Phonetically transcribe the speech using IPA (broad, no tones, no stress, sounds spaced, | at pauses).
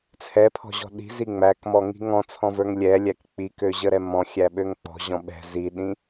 t͡sʰ ɛ pʰ ɔ̤ ʑ ɔ̤ ɗ i̤ z i ŋ͡m æ k m ɔ ŋ i̤ ŋ ɔ̃ t͡sʰ ɔ̃ v ə˞ ŋ lʲ ɛ lʲ æ k k͡p i k ø ʑ ə ɾ ɛ m ɔ̃ xʲ æ ɓ ø ŋ k͡p ɔ̤ ʑ ɔ̃ ɓ ɛ̤ z i ɗ ĩ